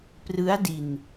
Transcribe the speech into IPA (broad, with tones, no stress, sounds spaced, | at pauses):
p r ɯ˦˥ a̯ d i˧ n